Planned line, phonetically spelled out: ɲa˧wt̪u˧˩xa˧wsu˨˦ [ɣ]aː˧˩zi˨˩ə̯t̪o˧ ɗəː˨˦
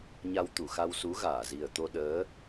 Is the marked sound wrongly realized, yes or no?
no